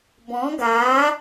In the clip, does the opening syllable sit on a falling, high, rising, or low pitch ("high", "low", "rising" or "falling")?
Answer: rising